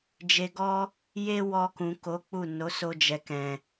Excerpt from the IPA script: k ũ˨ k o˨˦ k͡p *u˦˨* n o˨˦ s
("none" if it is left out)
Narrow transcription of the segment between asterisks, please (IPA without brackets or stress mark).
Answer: u˦˨